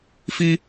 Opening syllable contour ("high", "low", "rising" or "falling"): high